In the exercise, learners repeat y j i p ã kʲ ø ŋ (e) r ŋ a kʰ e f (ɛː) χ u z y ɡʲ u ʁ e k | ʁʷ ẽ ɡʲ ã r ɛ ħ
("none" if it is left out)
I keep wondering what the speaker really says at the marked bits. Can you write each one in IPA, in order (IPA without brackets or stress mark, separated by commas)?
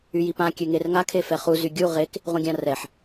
e, ɛ